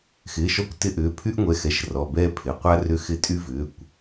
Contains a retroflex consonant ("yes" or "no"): no